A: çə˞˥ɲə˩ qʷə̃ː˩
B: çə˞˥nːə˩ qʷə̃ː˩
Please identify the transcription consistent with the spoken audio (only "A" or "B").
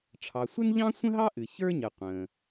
A